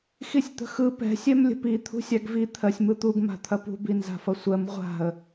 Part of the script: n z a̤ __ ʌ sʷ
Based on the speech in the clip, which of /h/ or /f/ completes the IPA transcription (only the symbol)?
f